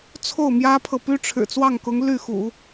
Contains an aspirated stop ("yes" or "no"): yes